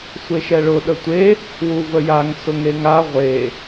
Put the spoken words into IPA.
sʷ e ʃ ɛ ɭ ʊ ɗ ə tʷ e | w u v ə j a ŋ s ʊ ŋ e ŋ a ʁʷ e

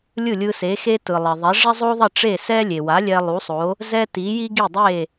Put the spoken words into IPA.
lʲ ɯ˥˩ lʲ ɯ˧ s e˩˥ x e˥ t ɯ˩ lˠ ɛ˩ ðˤ ɛ˩˥ ʐ ɛ˥ zˤ o˥ ðˤ ʌ˥˩ ʈ͡ʂ e˥˩ s ɛ˥ lʲ e˩ w a˩˥ lʲ ɛ˧ lˠ u˩˥ sˤ o˩˥ | z ɛ˥ t i˩˥ j i˥ ɡ i˥˩ dˤ e˥˩

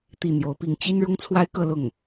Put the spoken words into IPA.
t̪ i˥˩ n̪ j o˧˥ ʊ̯ p i˥˩ ŋ t͡ɕ i˥ n ɻ ʊ˥ ŋ t͡sʰ w a˥ ɪ̯ k ɤ˥˧ l ʊ˥˩ ŋ

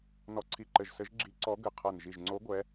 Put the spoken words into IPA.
n ɔ˧˩ ǀʰ i˧˩ ǃ ɘ˧˩ ʒ s ɘ˧˥ ʒ ɡ͡ǁ i˧˥ ǀ ɔ˧˥ ɡ ɘ˧˩ qʰ ɤ˧˩ n ʒ i˧˩ ʒ ŋ͡ǀ oː˧˥ ɡʷ ɛ˧˥

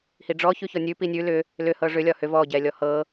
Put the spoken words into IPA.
h i ɖ͡ʐ ɔ ç ʉ ç ɔ nʲ ʉ p i nʲ ʉ l ʏ | l ʏ h ɤ ʐ ʏ lʲ ɒ h ʏ v ɔ ɟ ɛ lʲ ɔ h ɤ

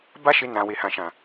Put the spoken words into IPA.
b a˦ ʃ e˧ n ã˨ w e˨ h ã˨ ʃ ã˨

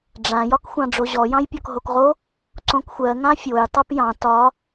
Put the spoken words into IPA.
ɖ͡ʐ ã j ɒ k xʷ ɑ̃ ɖ͡ʐ o ʑ ɔ j ɑ̃ j pʲ ɔ k ɦ o k ʁ o | ǀ õ k xʷ ɜ ŋ ã fʲ o j tˤ o p j ɑ̃ t ɒ

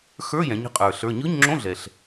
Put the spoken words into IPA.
x ə˞˧˥˧ j ɛ̃˩˧ ɲ ə̤˩˧ qʼ ə˞˩ ɬ ə˞˩˧˩ ɲ ɯ˧˥˧ ɲ ŋ͡ǁ õ˧˥˧ ɮ ɛ˩ ɬ

